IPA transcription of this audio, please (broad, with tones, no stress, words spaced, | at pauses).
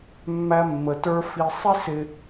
mːæ˦mːə˨tə˞˦ fi˨sˤi˦sɪ˨